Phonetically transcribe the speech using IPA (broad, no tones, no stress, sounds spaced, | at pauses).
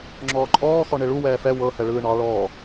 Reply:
ŋ͡ǁ ɔː ǃʼ ɔː x ɔ ɳ e ɭ u w ɛː f ɛ w ɤ h ɛ ɭ ɯː ɳ ɑ ɭ ɔː